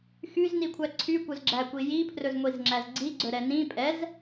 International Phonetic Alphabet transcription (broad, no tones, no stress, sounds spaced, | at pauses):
x y z n i kʷʰ æ ǀʰ y kʷ œ z ɡ͡ǁ æ kʷ i j i pʰ r ɵ z ŋʷ i z ŋ͡ǁ æ z ɡ͡ǀ i ɡ͡ǀ ɵ ɾ ɛ n ĩ pʼ ɛ z